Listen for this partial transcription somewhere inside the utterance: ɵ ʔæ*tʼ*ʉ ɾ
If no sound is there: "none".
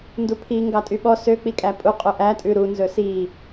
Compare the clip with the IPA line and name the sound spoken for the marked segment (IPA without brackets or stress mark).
tʼ